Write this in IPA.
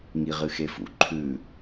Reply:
ŋiʁɨxefṵ ǃʰʉ

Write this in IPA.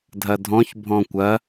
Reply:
dʱɐdʱɔ̃ç bʱɔ̃kʷɐ

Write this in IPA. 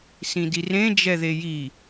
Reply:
sĩdirẽ d͡ʒɛðeji

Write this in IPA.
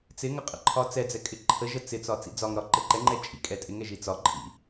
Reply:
t͡sɪŋə qʼə̰ǃʰɒt͡sɛd͡zɛ kʼɪǃʰəʒə t͡sɪt͡sɒ t͡sḭd͡zɒŋɾɒ ǃəǃɛŋ͡ǃɛ t͡ʃʼḭkʼɛ tʼɪŋɛ ʒit͡sɒǃʼḭ

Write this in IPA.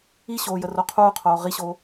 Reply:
iɕoː jəroqʰuːqʰoː ʁiɕoː

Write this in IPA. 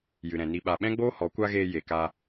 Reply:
jɨ˨ɾɛ̃˨ni˧ ɓa˨ɓɛ̃˦ɡ͡boː˦ hɔ˨˦kʷa˦ɣeː˧ je˨kaː˧

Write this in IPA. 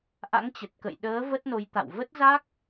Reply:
ʔa̰˧˥ŋt͡ɕə˨˩t̚kə̰˧˨j ɗəː˨˦ və˦˥t̚no˨˦jt̪a̰˧˨w və˦˥t̚za˦˥k̚

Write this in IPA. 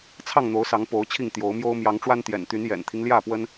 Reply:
t͡sʰɑ˥˨ŋn̪o˨˦ʊ̯sɑ˨˦ŋ po˨˦ʊ̯t͡ɕʰi˥˨ŋ t̪jo˨˦ʊ̯mjo˦ʊ̯ mjɑ˨˦ŋʈ͡ʂwa˦nt̪jɛ̰˨˩nt̪y˨˦n jɛ̰˨˩nt̪ʰi˦ŋ ljä˥˨pwə˦n

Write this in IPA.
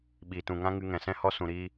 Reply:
ɓiː˨tũ˨ŋã˦ ŋɨ˧ŋɛ̃˨sɛ̃˦ hɔ˧sũ˨ɾiː˧

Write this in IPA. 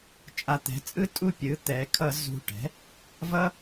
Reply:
t͡ʃʼa˨˩t̪ɛ̤˩˧t͡sʼɯ˦ tʼu˦˨pʲɯ˩˥ t̪ɛ˩˧kʰʌ˧˩˧ zṳ˨˩ ʈɛ̤˩˥ | vʌ˦

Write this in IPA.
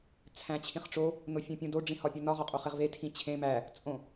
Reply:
t͡sʰæ̃t͡ɕʰĩχʈ͡ʂo | nofʲẽpʲũdo ɖ͡ʐĩhɒpʲunɒ ʁɒqʼoχeʁve tʰĩt͡ɕʰẽ mæ | t͡sʼõ

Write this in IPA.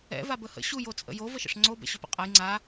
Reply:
ɛ̰ vabəhə̰ ɕuj ot͡sʼə̰jo vəʃə̰ʂŋ͡ǀo bɛ̰ɕɵpə̰qʼaj ŋ͡ǀa

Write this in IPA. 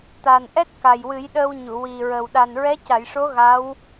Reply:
t̪a˨˩nʔɛ˦˥t̚ ka˨˩jwɨ˨˩˦jɗəː˧w ɲu˨˩˨ wi˨˩ɹə˨˩w ɗa˨˩nɹɛ˧˥ca˨˩˨jʂo˧˥ ɣa˧˥w

